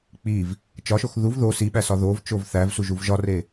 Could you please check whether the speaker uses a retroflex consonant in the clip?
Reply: no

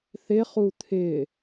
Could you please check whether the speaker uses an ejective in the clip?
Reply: no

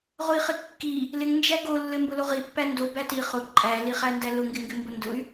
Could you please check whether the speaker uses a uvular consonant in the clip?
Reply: yes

